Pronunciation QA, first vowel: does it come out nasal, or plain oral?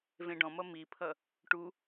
nasal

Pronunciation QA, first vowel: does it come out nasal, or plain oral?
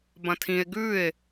nasal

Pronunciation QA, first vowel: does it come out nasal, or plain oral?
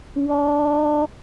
oral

